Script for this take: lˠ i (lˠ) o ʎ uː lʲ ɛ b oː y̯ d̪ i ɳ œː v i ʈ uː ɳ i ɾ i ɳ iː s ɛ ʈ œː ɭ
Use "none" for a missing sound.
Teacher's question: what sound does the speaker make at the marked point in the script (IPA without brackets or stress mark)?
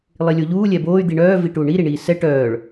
lʲ